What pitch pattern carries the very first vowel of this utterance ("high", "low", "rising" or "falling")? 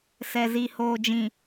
low